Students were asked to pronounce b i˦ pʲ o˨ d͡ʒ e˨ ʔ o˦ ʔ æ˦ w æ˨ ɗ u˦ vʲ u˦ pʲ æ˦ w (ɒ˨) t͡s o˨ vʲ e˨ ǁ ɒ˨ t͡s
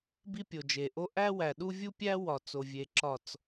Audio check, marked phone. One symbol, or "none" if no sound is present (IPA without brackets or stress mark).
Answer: ɒ˨